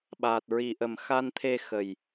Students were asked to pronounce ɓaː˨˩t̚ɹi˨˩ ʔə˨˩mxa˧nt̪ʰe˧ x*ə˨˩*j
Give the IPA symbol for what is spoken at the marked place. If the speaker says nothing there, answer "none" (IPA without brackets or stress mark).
ə˨˩